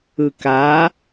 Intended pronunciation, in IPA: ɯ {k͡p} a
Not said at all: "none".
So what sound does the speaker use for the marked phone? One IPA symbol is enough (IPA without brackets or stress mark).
k